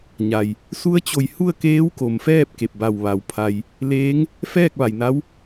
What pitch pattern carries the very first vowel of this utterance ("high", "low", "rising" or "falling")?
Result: low